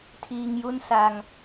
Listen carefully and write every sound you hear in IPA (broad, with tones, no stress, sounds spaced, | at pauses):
tʰ iː˧ ŋ j u˥˩ n s a˧ ŋ